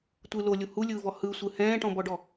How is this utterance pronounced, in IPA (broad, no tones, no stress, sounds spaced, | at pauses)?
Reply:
tʷ ɯ l o lʲ u h u lʲ ɯː v ɔ h ɯ sʷ ɯ h ɛ̃ː ʈ ɔ̃ b ɔ ɖ ɔ